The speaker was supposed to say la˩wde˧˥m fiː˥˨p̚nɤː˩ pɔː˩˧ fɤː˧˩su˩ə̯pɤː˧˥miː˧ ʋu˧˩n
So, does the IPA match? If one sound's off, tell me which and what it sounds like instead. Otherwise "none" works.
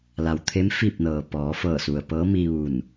d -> t̪ʰ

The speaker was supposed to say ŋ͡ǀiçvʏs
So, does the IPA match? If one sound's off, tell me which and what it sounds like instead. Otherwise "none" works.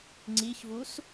ʏ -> u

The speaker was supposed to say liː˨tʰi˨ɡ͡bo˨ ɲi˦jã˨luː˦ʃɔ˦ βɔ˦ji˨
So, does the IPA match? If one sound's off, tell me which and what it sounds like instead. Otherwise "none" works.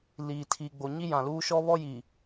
none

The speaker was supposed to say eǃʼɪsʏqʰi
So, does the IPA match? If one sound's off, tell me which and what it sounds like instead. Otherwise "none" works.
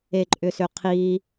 ɪ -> ʏ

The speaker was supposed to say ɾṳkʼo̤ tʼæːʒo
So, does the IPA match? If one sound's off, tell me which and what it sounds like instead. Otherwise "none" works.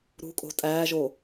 none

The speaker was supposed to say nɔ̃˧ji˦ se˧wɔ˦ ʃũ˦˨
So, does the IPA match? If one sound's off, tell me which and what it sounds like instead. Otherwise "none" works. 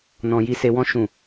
ɔ˦ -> ɔ̃˦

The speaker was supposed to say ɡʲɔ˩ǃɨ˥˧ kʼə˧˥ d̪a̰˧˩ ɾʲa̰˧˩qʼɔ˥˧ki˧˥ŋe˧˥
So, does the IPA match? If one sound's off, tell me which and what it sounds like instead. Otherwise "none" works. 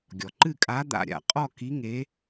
ə˧˥ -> a˧˥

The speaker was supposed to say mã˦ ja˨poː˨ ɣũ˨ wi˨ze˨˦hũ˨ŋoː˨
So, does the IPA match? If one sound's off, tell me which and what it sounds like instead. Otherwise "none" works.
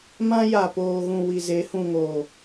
none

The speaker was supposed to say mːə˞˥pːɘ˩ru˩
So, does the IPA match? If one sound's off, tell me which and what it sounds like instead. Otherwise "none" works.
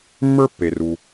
ɘ˩ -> e˩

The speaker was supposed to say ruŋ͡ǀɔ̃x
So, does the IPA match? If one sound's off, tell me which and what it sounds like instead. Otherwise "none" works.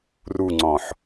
x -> ħ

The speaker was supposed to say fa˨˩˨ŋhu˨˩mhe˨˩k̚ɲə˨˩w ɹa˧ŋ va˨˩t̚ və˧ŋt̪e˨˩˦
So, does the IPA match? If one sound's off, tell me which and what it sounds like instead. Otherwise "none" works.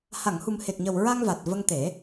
f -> h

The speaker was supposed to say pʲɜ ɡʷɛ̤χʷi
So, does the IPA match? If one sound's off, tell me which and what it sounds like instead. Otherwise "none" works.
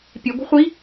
ɜ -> ɛ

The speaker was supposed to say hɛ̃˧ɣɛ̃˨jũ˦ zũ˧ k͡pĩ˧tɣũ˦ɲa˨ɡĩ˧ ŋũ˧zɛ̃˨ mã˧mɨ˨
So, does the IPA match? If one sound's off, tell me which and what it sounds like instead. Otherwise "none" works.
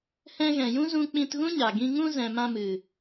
none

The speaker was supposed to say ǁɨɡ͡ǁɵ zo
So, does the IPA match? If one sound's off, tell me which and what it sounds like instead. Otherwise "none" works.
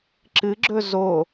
none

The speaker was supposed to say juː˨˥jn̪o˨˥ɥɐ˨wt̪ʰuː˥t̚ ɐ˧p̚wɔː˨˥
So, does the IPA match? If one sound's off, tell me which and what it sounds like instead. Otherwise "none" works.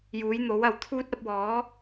ɥ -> w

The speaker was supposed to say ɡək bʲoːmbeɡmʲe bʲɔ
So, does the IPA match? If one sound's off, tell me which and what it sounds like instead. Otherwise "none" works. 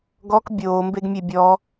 ə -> ɔ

